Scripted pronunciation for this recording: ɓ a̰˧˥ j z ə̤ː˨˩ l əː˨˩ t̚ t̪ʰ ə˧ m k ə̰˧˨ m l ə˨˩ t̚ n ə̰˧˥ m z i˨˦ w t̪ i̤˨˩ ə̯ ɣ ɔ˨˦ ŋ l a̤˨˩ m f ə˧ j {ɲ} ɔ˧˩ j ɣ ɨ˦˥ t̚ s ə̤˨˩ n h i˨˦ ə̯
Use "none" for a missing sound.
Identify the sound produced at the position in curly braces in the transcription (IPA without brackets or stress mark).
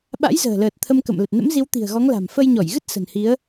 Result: ɲ